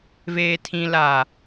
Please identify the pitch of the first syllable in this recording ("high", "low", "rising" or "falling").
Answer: low